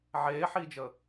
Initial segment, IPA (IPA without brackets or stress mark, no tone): ʕ